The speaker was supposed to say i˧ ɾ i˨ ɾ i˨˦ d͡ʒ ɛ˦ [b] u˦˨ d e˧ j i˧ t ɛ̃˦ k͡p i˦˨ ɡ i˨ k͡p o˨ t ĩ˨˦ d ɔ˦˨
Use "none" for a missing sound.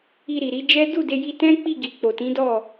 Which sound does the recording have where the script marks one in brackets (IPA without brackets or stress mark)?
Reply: d